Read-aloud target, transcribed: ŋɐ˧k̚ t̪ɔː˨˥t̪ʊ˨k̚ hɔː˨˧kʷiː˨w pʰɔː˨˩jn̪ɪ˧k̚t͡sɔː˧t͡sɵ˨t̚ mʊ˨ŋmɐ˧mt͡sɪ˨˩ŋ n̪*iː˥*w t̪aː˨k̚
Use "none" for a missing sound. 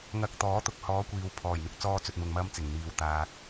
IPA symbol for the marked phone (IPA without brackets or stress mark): iː˨